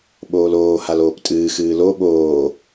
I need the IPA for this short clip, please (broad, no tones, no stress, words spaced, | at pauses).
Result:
ɓoːloː haloːptʼɨː xɨːlo ɓoː